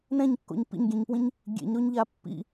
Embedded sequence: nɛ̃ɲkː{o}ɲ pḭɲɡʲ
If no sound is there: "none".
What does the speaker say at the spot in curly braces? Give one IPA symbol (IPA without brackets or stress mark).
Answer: o̰